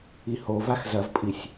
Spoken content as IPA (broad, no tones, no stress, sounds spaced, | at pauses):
i h o v a x z ɐ v pʼ i sʲ